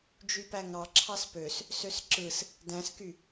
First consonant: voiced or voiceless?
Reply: voiced